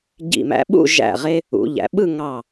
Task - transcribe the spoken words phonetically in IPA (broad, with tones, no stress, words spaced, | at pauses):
ɟḭ˧˩mæ̰˧ɓṵ˥˧ ʒæ̰˧˩ ʁe˧ | ṵ˩˧ʎæ̰˩˧ɓɯ˥˧ ŋɑ˧˩